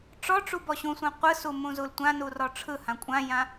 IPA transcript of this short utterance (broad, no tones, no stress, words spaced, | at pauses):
ʈ͡ʂɔʈ͡ʂu bɔɕũsʷã qʷɯsu mũzultʷãnu rɔʈ͡ʂʰɯhã kʷʼãjã